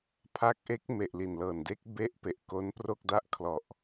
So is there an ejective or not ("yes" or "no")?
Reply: no